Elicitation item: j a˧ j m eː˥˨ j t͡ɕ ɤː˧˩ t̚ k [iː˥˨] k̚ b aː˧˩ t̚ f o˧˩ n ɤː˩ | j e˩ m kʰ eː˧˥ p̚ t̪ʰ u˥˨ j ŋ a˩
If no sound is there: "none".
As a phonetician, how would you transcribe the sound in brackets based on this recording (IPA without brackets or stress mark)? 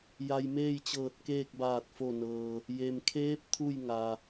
eː˥˨